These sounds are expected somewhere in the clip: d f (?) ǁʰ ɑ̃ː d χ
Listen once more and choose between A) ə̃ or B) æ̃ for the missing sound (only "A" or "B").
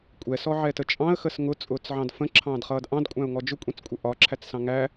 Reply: A